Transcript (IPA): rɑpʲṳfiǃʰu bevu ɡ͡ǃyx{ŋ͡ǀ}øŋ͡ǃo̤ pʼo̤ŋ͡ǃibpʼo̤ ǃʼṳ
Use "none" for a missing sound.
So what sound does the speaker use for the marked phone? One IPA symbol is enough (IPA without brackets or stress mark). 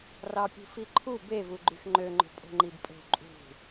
ŋ͡ǃ